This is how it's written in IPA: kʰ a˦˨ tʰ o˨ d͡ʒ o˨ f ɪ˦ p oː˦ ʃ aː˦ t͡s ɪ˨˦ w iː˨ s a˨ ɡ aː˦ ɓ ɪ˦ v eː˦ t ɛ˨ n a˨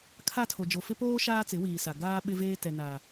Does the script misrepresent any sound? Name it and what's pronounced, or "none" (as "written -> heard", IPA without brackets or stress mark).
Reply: none